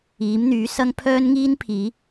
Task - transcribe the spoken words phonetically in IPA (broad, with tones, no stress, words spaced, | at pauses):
iː˨˥mn̪yː˨˥ sɐ˥ŋ pʰœː˥nŋiː˥n pʰiː˨˥